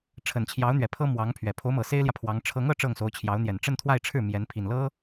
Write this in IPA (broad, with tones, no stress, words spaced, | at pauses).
ʈ͡ʂʰə˨˩nt͡ɕʰjɑ˧˥ʊ̯n̪ɥɛ˨˩pʰɤ˥ mwɑ˧˥ŋpʰɥɛ˨˩ pʰo˧˥ʊ̯mɤ˨˩se˥ɪ̯ljä˨ pʰwɑ˧˥ŋ ʈ͡ʂʰɤ˧˥ŋɤ˥˧ ʈ͡ʂɤ˥˩ŋso˧˥ʊ̯t͡ɕʰjɑ˧˥ʊ̯n̪jɛ˨˩n ʈ͡ʂə˥˧nt̪ʰwa˥˧ɪ̯ʈ͡ʂʰɻ̩˥˩ mjɛ˧˥n pʰi˨˩nlɤ˥